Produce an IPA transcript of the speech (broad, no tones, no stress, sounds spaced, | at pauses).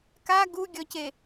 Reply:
k a ɡ u ɡʲ ɔ c e